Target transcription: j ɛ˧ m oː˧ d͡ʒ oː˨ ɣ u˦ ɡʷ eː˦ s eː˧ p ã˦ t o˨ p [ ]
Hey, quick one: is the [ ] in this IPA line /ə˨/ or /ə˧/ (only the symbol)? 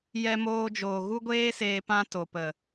ə˨